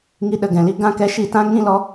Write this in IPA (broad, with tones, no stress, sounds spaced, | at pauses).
ŋ i˧ ɗ ə˧ ɡ ɛ̃˨ l i˧ ɡ ã˧ k ɛ˧ ʃ i˦˨ t ã˦ ŋ ĩ˦ l ɔ˦